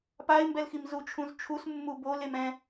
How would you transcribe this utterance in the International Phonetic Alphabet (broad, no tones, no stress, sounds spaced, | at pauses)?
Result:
p a ɪ̯ m b ɛ l x i m z u t͡ʃʰ ũ z t͡ʃʰ u s mː u b o l e m ɛ̃